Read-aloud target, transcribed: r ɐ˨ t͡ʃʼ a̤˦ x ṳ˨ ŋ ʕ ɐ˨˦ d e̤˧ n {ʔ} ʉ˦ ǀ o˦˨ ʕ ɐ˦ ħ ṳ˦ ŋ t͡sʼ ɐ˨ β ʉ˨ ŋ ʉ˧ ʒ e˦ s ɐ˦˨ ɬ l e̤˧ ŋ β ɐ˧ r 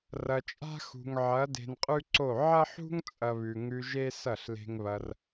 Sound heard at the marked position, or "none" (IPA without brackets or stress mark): qʼ